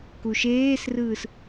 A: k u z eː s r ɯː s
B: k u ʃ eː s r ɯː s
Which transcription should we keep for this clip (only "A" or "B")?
B